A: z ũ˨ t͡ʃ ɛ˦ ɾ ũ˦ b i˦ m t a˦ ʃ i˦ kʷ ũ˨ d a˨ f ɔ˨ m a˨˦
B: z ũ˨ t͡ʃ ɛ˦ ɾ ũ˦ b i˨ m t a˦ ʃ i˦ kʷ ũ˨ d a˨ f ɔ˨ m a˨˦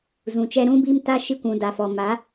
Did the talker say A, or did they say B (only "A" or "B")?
A